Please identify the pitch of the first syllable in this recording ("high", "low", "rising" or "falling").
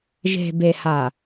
low